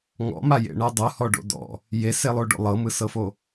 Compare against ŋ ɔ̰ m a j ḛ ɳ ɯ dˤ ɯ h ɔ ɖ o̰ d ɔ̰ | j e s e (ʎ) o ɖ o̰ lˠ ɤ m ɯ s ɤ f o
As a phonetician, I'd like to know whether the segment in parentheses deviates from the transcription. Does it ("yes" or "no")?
yes